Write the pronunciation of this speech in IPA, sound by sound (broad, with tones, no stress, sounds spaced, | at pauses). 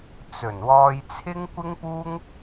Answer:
t͡s ɵ˨˩ n w ɔː˧ j t͡sʰ ɪ˥ ŋ kʷ ɪ˥ ŋ p uː˥ ŋ